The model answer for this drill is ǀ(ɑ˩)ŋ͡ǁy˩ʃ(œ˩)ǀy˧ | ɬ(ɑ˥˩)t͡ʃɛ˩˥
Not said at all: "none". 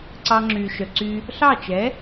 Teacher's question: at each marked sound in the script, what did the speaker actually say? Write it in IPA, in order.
ɑ˧, œ˩, ɑ˥˩

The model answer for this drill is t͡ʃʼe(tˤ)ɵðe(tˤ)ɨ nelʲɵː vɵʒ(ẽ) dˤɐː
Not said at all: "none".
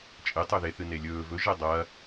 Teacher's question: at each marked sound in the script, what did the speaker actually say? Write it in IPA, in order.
tˤ, θ, e

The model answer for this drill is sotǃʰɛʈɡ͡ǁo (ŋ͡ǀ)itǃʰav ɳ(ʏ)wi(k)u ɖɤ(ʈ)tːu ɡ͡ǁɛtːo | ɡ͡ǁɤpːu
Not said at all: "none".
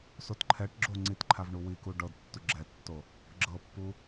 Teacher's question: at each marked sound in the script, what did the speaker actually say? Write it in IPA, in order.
ŋ͡ǀ, u, k, d

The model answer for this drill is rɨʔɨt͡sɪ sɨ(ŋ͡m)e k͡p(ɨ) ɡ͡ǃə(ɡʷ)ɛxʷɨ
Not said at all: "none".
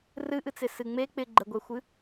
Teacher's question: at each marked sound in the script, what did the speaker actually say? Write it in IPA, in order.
ŋ͡m, ɪ, ɡʷ

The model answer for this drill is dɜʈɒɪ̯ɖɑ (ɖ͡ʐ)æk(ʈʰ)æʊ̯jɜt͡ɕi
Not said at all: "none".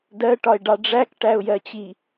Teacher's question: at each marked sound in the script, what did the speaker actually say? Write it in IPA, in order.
ɖ͡ʐ, ʈ

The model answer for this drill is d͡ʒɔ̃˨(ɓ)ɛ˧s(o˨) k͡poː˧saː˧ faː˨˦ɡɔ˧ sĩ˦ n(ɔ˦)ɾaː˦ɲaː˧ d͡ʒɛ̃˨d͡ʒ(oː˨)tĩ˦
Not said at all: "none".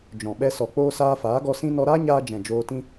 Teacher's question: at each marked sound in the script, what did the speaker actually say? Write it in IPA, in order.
ɓ, ɔ˨, ɔ˧, oː˧

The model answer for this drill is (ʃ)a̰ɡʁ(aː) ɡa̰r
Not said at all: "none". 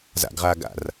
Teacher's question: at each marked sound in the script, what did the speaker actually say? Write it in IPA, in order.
z, aː

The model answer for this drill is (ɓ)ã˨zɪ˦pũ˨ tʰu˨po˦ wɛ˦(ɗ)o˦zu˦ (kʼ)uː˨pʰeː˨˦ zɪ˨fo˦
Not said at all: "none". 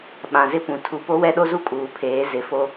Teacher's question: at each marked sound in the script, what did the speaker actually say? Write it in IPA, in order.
ɓ, ɗ, kʼ

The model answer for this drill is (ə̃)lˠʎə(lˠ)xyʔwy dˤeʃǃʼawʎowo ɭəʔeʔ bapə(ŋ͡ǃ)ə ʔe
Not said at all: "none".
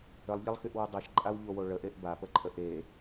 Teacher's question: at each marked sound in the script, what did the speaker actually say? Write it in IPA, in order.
ə, lˠ, ǃʼ

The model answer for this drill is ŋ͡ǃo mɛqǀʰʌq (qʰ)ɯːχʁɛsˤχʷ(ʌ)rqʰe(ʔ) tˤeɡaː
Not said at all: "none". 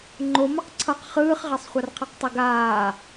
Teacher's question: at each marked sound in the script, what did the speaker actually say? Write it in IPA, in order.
χ, a, q

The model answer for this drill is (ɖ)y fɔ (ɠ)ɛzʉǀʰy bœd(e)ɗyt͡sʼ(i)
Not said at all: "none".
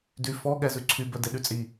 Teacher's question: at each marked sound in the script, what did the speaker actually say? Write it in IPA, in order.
d, ɠ, e, i

